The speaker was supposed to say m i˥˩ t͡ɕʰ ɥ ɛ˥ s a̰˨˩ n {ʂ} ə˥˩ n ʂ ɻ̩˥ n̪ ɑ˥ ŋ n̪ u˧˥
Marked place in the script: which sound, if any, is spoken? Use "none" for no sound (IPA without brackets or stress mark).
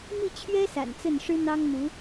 t͡s